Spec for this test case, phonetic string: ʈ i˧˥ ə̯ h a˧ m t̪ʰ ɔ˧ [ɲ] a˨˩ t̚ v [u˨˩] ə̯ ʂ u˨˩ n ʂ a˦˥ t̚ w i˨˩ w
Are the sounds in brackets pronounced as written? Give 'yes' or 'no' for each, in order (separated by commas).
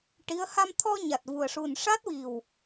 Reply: yes, yes